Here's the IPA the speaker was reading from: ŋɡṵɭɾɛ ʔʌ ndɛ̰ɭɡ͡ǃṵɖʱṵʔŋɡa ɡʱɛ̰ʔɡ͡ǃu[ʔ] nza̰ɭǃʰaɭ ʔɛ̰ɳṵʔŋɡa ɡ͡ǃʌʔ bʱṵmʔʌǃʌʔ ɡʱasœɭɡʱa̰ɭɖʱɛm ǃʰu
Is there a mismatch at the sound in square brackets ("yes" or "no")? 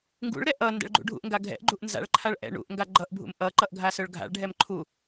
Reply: no